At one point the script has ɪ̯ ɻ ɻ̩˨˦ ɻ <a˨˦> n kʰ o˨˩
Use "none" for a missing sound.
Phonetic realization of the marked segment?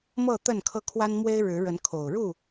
ə˨˦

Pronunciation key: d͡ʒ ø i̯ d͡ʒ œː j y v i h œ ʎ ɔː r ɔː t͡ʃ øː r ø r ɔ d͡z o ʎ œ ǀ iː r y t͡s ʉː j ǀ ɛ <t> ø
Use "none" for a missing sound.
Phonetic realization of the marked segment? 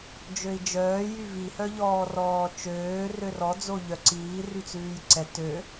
t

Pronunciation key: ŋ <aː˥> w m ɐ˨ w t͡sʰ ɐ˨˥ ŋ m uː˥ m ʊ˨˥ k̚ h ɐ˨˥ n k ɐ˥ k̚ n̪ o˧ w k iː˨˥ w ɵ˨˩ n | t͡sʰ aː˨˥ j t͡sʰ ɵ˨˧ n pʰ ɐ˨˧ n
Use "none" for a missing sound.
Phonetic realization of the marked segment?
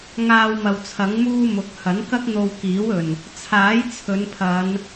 aː˧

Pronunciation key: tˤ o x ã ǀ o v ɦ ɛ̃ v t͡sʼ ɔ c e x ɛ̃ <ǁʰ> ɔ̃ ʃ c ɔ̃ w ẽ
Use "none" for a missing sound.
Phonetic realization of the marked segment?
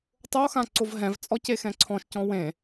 ǀʰ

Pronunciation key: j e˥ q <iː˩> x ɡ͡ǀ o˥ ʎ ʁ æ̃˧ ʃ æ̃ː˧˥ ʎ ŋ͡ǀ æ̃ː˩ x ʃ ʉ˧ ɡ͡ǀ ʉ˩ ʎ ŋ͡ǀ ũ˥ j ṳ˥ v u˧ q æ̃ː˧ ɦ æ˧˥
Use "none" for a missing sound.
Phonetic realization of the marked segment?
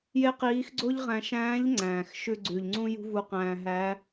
iː˧˥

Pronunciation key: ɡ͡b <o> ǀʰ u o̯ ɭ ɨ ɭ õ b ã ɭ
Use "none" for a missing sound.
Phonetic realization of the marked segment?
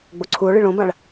o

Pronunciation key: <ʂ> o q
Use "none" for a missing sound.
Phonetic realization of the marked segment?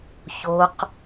ç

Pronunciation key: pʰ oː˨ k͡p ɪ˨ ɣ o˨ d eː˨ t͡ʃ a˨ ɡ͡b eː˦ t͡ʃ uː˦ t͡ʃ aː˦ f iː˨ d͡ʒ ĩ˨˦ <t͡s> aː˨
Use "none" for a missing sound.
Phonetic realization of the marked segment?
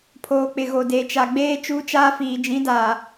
d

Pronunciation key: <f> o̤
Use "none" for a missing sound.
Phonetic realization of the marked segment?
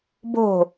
b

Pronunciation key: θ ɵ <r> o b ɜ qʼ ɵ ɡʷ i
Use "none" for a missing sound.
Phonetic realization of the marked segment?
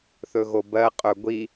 ɣ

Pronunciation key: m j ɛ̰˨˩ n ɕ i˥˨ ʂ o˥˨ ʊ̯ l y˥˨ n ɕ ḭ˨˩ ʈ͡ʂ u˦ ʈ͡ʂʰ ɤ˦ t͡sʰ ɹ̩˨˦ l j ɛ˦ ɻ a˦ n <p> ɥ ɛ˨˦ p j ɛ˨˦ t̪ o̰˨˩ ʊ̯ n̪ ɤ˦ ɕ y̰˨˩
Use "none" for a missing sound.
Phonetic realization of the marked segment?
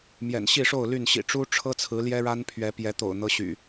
pʰ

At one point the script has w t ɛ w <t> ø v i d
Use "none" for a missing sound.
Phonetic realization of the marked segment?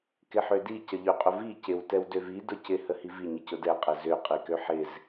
d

